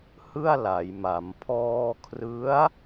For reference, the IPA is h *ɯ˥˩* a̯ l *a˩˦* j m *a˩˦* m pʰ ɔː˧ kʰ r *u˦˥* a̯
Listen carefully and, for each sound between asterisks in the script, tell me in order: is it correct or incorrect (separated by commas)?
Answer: correct, correct, correct, incorrect